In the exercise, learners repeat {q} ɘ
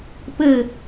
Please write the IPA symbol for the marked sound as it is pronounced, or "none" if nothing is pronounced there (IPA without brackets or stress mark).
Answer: p